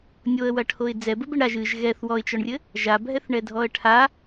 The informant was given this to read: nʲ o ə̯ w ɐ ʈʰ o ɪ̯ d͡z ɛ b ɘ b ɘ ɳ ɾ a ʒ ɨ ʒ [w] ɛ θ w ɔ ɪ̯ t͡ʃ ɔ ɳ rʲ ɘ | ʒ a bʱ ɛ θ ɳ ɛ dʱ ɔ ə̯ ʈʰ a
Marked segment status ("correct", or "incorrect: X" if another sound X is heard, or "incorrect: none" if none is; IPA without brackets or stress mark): incorrect: ɣ